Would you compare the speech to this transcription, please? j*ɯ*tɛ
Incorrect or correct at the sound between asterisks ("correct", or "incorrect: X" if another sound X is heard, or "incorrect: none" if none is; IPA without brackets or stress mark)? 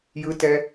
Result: correct